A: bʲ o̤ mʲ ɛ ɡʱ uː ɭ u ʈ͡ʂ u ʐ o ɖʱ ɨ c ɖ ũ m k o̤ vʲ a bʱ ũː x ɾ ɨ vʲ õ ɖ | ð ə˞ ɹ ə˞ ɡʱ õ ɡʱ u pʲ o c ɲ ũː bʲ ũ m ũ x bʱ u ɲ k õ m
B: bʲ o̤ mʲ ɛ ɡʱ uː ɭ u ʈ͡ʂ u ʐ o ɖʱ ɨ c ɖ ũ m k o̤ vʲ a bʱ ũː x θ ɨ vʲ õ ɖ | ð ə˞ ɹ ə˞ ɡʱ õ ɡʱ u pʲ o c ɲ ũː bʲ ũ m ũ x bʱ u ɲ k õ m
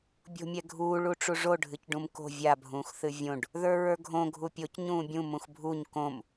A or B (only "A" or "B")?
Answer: B